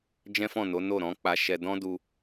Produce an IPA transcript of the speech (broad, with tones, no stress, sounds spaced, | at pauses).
d͡ʒ ɛ̃˦ f ɔ̃˦˨ n o˨˦ n o˦˨ ɾ ɔ̃˨˦ k͡p a˧ ʃ ɛ˧ d ɔ̃˦ d u˧